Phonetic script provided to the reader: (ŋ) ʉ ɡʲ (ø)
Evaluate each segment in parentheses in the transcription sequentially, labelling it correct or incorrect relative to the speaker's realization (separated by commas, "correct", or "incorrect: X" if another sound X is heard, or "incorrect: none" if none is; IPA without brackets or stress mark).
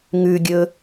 correct, incorrect: ɵ